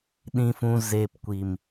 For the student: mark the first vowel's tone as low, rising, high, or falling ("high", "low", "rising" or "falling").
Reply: low